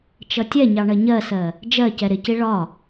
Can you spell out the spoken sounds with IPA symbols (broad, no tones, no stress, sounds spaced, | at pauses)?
t͡ʃ ʌ tʲ ɛ ɲ ɑ ɳ ɜ ɲ ɜ s ɜ | d͡ʒ ɜ c ɛ ɾ ɪ c i ɭ ɒ